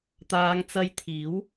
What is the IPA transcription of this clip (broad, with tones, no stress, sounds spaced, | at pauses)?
t̪ aː˨˧ ŋ t͡s ɐ˧ j t̪ʰ iː˨˥ w